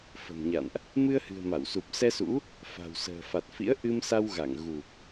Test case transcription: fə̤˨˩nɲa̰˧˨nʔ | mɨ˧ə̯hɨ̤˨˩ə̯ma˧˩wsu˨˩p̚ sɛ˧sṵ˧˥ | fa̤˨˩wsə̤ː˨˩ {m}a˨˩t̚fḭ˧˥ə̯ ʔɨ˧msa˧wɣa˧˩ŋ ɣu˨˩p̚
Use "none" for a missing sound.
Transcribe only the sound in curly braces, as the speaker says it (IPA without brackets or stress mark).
f